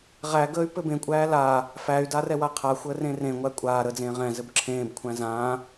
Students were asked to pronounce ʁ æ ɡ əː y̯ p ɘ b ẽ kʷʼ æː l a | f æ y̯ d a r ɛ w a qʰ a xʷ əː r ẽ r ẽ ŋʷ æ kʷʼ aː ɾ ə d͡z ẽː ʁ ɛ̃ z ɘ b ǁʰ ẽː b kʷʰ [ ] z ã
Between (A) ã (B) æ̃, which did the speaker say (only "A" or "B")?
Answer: B